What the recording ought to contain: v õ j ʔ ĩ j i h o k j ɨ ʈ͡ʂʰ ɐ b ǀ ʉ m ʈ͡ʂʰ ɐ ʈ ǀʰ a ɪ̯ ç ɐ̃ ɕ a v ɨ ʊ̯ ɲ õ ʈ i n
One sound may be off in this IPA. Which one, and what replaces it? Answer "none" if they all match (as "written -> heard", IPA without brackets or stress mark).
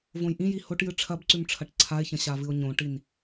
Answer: k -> ʈ